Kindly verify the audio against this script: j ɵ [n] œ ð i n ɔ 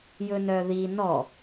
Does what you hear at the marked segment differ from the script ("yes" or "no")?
no